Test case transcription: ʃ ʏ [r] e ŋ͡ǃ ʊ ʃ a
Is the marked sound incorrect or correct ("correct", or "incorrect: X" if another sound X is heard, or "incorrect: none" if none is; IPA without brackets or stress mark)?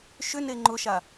incorrect: n